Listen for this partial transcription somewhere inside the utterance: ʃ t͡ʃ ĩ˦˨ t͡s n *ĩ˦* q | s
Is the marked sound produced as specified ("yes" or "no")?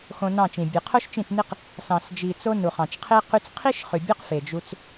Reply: no